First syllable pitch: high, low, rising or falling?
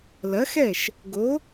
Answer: rising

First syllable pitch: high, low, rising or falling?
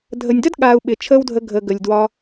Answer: low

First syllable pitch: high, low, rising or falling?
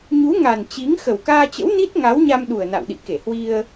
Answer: rising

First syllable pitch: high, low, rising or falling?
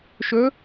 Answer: rising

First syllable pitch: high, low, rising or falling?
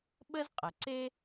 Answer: high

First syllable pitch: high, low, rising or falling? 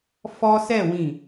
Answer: high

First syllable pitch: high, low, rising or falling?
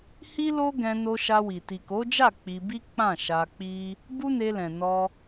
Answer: high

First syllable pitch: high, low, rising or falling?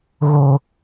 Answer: low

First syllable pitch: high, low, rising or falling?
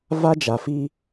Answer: high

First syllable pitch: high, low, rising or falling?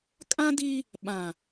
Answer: high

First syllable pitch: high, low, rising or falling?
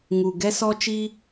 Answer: low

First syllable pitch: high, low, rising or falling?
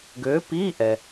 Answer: rising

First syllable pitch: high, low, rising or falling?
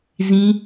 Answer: high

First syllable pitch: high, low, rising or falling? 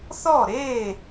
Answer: falling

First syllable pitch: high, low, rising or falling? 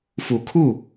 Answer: low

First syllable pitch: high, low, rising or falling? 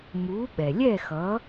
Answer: rising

